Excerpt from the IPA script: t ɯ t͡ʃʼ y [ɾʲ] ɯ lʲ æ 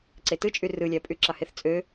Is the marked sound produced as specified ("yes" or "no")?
no